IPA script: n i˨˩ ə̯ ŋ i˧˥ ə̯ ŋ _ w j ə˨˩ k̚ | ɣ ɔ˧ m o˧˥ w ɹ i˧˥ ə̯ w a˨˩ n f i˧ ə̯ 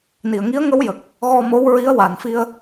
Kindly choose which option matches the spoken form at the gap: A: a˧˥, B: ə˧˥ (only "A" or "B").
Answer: B